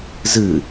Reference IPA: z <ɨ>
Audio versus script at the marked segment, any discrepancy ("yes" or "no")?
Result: no